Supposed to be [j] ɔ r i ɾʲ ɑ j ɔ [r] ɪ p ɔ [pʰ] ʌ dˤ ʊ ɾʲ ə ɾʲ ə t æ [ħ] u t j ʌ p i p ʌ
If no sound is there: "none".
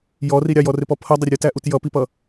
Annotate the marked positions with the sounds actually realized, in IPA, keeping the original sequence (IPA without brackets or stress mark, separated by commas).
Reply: j, r, pʰ, ʔ